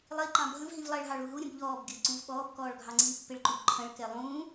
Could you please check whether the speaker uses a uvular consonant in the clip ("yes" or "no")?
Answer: no